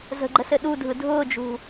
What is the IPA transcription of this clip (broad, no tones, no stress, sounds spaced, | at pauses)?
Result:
z ə̤ ɡ͡ǃ ə s ɘ ɗ u dʱ ɯ dʱ ʊː d͡ʒ ṳ